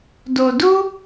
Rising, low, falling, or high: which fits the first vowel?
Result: low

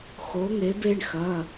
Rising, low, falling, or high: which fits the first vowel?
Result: rising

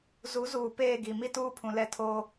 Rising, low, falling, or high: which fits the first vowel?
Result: rising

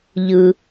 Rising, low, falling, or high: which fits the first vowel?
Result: low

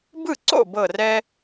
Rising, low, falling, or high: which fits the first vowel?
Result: falling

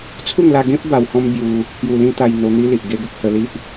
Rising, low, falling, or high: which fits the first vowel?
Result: falling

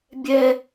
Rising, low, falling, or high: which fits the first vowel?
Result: high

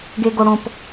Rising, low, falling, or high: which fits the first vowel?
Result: high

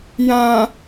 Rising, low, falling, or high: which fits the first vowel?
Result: low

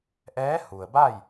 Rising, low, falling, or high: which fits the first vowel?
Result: rising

